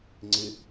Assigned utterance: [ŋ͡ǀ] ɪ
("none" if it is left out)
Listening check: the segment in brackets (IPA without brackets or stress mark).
ŋ͡ǀ